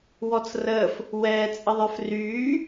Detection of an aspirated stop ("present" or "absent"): absent